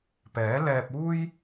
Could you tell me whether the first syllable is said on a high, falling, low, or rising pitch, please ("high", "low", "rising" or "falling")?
rising